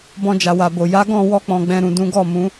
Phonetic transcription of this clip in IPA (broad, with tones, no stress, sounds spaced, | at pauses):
b ɔ̃˧ d͡ʒ a˨ w a˨ b o˨ j a˨˦ ɡ ɔ̃˦˨ w ɔ˧ k͡p ɔ̃˨ ɡ͡b ɛ̃˨ ɾ ũ˨ d ũ˨˦ ɡ ɔ˦˨ m ũ˨˦